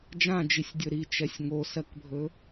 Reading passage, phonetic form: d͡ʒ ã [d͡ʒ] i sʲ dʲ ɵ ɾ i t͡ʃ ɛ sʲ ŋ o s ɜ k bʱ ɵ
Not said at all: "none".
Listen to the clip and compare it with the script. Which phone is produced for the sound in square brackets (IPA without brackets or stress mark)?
d͡ʒ